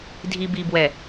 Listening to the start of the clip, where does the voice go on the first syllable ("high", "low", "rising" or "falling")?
low